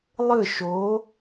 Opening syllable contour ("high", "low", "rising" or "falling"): falling